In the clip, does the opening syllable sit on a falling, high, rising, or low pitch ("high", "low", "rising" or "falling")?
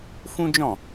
high